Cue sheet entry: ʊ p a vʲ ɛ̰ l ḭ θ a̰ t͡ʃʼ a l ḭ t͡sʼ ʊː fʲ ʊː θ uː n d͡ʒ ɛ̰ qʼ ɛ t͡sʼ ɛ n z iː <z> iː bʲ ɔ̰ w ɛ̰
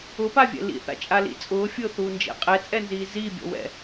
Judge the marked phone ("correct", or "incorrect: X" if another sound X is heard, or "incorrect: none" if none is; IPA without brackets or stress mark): correct